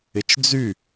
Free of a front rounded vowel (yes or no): no